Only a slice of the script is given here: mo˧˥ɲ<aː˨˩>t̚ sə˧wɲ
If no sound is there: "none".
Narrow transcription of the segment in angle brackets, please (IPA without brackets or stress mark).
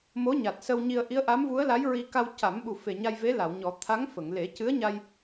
a˨˩